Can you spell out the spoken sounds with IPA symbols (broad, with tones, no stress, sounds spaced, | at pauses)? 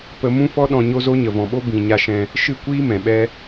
p ə˧ m ũ˦ f ɔ˧ ɗ ɔ̃˨ ɲ o˧ z o˧ ɲ ə˨ v ɔ̃˨ ɓ o˦ b ĩ˨ ɲ a˧ ʃ ɛ̃˦ | ʃ ɨ˦˨ kʷ iː˦ m ɛ̃˨ ɓ ɛ˦